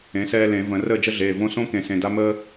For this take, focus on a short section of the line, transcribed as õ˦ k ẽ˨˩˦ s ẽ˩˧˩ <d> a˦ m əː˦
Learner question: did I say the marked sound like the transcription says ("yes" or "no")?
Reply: yes